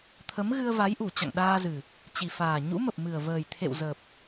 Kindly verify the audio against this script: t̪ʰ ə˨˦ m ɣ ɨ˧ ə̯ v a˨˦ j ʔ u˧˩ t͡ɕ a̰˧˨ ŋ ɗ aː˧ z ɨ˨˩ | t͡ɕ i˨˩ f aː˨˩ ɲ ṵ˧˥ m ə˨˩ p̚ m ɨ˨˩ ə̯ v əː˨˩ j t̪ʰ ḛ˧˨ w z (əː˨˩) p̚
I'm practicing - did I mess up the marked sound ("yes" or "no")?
no